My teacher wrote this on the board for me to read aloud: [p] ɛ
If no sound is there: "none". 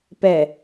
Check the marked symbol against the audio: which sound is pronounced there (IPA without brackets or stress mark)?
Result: p